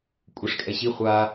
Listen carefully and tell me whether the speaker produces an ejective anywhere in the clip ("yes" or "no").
yes